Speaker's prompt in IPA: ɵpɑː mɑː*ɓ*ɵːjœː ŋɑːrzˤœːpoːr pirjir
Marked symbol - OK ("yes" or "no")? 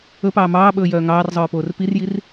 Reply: yes